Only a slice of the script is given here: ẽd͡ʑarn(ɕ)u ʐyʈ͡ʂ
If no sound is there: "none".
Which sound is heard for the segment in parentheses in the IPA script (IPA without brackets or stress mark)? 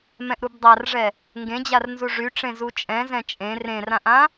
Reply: z